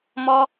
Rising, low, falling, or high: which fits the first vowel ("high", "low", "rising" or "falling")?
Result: high